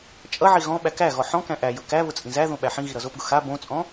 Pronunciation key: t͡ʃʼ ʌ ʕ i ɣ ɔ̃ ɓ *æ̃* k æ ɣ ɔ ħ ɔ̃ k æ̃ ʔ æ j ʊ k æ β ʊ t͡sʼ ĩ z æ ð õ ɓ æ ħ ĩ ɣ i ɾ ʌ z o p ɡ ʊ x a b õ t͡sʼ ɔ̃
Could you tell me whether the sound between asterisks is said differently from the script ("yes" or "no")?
yes